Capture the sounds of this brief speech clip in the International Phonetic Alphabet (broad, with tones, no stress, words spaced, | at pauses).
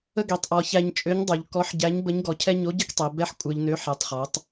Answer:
ə˥ɡe˩˧tˤʔɔ˩˧ çæ˧ɲt͡ʃʼø˧˥ɲdˤo˩˧ʎ kɔ˧˥ħɟæ˧˥ɲ bə˧˥ɲɡɔ˩˧cʰɛ˥ ɲo˧˥ɟɪ˥k tˤe˩˧ bɛ˥ħ kʷʼə˞˧ʎnø˧˥ ħɛ˩˧tˤχɔ˩˧tˤ